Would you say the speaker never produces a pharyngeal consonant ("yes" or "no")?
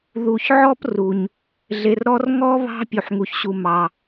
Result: no